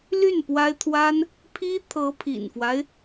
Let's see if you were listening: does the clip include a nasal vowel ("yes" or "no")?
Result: no